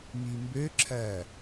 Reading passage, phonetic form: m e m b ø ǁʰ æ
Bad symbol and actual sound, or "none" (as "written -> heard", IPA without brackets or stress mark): e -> i